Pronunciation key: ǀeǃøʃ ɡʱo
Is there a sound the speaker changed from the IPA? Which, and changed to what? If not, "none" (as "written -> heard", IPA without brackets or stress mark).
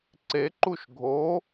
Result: ø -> u